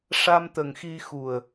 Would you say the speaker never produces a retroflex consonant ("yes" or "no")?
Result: no